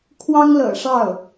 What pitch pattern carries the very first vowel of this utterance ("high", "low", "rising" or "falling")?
high